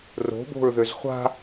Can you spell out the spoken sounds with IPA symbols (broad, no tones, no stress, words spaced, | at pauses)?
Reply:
ro̤bo̤ɹðøz χʷa̤